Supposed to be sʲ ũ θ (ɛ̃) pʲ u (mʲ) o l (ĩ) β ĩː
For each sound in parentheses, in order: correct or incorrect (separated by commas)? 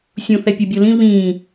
incorrect, incorrect, correct